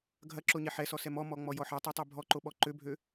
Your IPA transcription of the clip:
ɡʱ ɐ ǁ o ɲ ɛ ħ ɛ s ɔ s ɛ m ɔ m ɔ ŋ͡m ɔ j ɔ ħ ɐ tˤ ɛ tˤ ø bʱ ɔ ǃ o ɓ ɔ ǃ ø bʱ ø

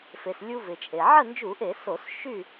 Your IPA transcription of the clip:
f e˩ s lʲ u˧ v ɪ˩ t͡ʃʼ e˩ ʕ ə˥˨ n d͡ʒ u˧˩˧ ʔ e˧˩˧ s o˧˩˧ s ʃ y˥˨

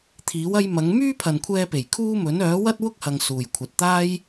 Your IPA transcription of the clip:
t̪ʰ iː˨˥ w ɐ˥ j m ɐ˨˥ ŋ m yː˥ pʰ ɐ˨ n kʷʰ ɛː˧ p e˨˩ j kʰ uː˥ m ɵ˨˥ n œː˨˥ w ɐ˥ t̚ w ʊ˥ k̚ h ɐ˨ ŋ s uː˨˩ j kʷʰ ɐ˨ t̚ t̪ aː˥ j

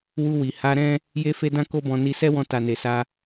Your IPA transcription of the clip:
w u˧ w i˨ h a˧ ɾ ɛ̃˦ | j e˦ f e˦ d ã˦ k o˦ b ɔ̃˧ n i˧ s ɛ˦ w ɔ̃˧ t a˨ n e˨ s a˧

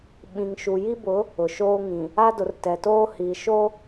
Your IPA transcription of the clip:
ɓ ĩ˨ ŋ ʃ u˨ j i˦ b ʊ˨˦ | ʊ˨ ʃ oː˦ ŋ ĩ˨ | a˦ d ʊ˨ r t ɛ˨ t oː˦ h iː˨ ʃ o˦

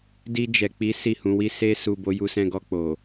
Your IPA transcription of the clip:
d i˧ d͡ʒ ɛ˨ k͡p i˨˦ s i˦˨ h ũ˨˦ w i˦ s e˧ s u˨ b o˨˦ j u˧ s ɛ̃˧ ɡ ɔ˧ k͡p o˨

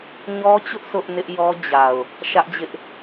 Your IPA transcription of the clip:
ɲ ɔ˦ t͡ɕ ʊ˦ ʔ s ʊ˦ ʔ n ɪ˦ ʔ j ɔ˦ d͡ʑ a˨ ʊ̯ | ʃ ä˦ ʔ d͡ʑ ɪ˦ ʔ

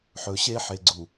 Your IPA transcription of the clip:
ħ ɵ˨ ɕ e˦ ħ e˨ ɡ͡ǀ u˨

